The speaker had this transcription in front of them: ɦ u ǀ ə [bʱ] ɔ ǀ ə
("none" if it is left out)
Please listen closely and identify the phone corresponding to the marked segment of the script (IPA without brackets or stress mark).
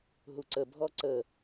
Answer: bʱ